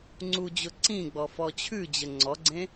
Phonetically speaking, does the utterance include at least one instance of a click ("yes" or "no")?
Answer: yes